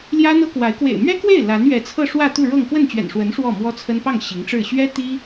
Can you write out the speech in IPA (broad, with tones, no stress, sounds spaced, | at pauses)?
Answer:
l j ä˥ n̪ ɤ˥ k w a˧˥ ɪ̯ k w ḛ˨˩ ɪ̯ m ɥ ɛ˥ k w e˥˩ ɪ̯ l a˧˥ n ɥ ɛ˧˥ t͡sʰ ɤ˥˧ ʂ w ä˥˧ t̪ u˥˧ ɻ ɤ˥˧ ŋ k w ə˥˩ n t͡ɕ ɥ ɛ̰˨˩ n ʂ w ə˧˥ n ʂ w ɔ˥˩ m w ɔ˥ t͡sʰ ə˥ n p ɑ˥˩ ŋ ɕ i˧˥ ŋ ʈ͡ʂ ɻ̩˥˩ ɕ ɥ ɛ˥ t̪ i˥